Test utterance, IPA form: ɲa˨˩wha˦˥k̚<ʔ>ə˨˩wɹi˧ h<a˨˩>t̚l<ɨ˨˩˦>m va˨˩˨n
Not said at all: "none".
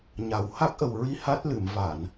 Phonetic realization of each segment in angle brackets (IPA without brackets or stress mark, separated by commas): ʔ, a˦˥, ɨ˨˩˨